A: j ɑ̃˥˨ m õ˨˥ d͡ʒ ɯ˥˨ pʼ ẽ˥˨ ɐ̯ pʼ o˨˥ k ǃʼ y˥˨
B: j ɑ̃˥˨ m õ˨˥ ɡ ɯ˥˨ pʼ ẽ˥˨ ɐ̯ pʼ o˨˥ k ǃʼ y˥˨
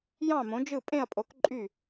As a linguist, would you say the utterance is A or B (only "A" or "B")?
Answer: A